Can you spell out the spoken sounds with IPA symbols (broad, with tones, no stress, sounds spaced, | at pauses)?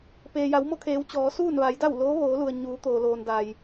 p eː˩ j a˩˧ w m o˥˨ kʰ eː˩˧ w t͡ɕ ɔː˩˧ s uː˥˨ n ʋ a˩˧ j d a˥˨ w l oː˧˥ ʋ oː˩˧ l u˩ ə̯ ɲ uː˩˧ t̪ oː˩ l oː˩ n d a˩ j